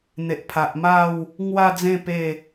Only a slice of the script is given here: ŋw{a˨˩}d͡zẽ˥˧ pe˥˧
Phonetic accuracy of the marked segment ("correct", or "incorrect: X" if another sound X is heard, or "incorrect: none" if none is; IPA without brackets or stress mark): incorrect: a˥˧